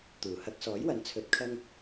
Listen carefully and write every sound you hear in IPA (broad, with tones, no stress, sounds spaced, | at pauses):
t̪ uː˨˩ h ɐ˧ k̚ s ɔː˨˥ j w ɐ˨ n t͡sʰ ɵ˨˥ t̚ kʰ ɐ˧ ŋ